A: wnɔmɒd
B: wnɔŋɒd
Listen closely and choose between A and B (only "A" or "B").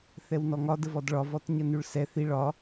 B